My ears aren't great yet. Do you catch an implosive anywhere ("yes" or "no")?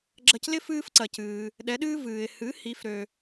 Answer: yes